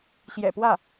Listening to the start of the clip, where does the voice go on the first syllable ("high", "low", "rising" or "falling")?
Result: low